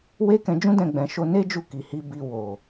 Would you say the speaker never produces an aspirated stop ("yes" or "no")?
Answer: yes